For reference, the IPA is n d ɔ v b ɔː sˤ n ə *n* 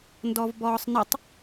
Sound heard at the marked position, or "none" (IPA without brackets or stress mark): tˤ